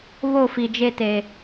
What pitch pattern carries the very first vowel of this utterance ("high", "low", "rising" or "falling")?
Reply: falling